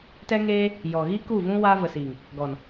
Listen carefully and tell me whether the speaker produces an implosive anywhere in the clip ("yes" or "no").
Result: no